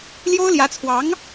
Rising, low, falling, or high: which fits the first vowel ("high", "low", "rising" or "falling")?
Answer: high